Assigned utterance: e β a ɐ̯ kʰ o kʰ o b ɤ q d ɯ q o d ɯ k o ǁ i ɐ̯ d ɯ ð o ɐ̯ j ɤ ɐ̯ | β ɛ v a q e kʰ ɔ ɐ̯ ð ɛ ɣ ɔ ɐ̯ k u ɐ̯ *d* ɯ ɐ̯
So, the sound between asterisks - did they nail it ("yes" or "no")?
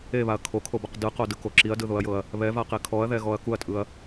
no